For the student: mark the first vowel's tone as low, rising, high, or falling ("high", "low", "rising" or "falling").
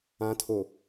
low